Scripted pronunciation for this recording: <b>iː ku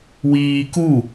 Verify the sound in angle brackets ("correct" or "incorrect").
incorrect